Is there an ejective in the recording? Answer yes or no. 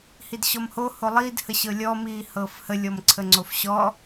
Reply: no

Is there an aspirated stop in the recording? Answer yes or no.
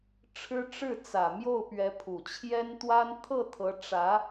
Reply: yes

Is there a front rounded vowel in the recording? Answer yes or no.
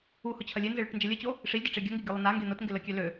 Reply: yes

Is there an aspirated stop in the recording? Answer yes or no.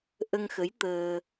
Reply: no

